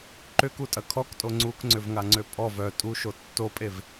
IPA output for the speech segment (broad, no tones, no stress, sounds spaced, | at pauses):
ǃ ʏ k u tʼ ɐ kʰ ɔ k tʼ o ŋ͡ǀ u k ŋ͡ǀ ʏ v ŋ a ŋ͡ǀ ø pʼ ɔ v œ tʼ u ʃ o tː o pʼ e v